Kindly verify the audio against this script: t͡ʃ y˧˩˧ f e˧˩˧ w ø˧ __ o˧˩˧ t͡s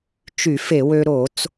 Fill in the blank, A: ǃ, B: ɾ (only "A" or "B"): B